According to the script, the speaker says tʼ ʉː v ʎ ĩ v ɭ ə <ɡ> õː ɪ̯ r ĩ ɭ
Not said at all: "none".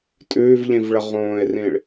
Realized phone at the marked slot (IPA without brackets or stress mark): ʁ